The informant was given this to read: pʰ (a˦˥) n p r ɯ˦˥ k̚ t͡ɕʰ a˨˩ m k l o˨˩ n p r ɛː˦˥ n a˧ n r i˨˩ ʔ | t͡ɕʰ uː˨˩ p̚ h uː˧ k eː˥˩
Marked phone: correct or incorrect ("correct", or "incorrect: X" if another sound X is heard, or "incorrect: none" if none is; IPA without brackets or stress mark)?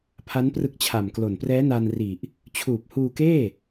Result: correct